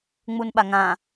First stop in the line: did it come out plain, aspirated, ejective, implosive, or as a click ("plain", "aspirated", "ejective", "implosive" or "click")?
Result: implosive